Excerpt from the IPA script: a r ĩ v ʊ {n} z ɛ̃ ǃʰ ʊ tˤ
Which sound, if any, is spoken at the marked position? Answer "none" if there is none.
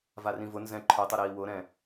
n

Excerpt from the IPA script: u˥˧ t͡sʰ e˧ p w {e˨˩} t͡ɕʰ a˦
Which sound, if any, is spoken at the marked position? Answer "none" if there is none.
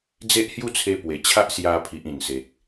e˨˩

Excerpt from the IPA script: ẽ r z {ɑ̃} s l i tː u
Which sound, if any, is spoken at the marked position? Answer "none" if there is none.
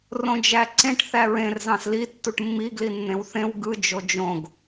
ɑ̃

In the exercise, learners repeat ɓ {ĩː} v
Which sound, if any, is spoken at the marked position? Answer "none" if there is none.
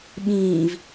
ĩː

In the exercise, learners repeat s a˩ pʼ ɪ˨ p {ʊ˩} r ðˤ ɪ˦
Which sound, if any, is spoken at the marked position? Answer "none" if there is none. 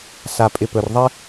ɵ˩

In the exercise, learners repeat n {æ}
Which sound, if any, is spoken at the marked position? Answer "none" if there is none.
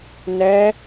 ɛ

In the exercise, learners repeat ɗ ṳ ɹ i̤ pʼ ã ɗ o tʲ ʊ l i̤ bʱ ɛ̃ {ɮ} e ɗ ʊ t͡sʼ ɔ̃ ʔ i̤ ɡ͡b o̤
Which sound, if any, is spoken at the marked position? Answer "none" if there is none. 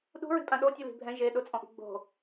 ʒ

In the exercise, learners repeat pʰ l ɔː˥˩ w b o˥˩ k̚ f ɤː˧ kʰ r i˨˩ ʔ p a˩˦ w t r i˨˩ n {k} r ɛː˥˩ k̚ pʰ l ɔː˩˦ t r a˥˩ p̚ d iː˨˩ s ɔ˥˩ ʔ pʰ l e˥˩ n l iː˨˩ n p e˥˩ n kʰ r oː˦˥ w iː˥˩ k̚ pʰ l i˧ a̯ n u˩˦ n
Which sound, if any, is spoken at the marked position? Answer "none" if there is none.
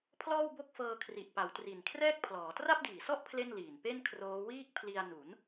kʰ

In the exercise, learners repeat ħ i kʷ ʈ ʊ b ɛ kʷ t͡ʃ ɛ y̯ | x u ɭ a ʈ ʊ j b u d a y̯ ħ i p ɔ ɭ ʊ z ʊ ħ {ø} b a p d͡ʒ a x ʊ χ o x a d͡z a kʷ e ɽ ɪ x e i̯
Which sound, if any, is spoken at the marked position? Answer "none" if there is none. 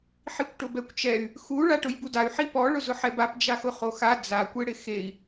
ɛ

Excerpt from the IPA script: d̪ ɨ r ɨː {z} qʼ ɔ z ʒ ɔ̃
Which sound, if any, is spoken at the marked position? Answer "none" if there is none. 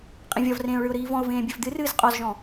z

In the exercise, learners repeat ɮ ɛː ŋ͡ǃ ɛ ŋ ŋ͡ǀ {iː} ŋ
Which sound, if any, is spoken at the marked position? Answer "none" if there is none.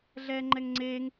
eː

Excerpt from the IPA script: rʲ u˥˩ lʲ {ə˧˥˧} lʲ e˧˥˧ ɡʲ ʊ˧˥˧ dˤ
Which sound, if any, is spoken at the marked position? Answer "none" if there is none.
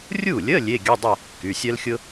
ə˧˥˧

